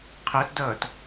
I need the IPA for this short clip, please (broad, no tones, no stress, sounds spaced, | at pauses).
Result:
qʰ ɜ t d ʌː t